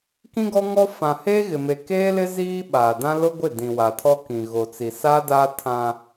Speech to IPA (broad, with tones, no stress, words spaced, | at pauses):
kĩ˦ɡɔ˦ŋɔ˦ fã˨heː˦ɣɪ˨ me˨keː˦lɪ˦ ziː˦ɓaː˨dã˦ lʊ˦ɡʷɪ˦˨ dĩ˨wa˨tʰɔ˦kĩ˨ ɣo˨t͡si˨saː˦daː˦ tʰã˦